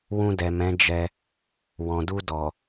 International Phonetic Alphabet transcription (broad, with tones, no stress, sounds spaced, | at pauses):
w ũ˧ d ɛ˨ m ɛ̃˨˦ d͡ʒ ɛ˧ | w ɔ̃˨ d u˧ d ɔ˨